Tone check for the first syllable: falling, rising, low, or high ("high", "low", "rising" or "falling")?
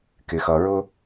low